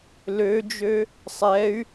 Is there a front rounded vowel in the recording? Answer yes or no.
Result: yes